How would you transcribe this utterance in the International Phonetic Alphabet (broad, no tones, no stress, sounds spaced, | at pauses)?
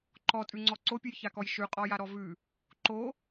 ǃ ɔ tʼ ʉ ŋ͡ǀ ɔ ǀ o pʲ ʉ j ç a k ɔ j ʃ ʉ qʼ ɔ j a ɾ ɔ v ʉ | ǃ o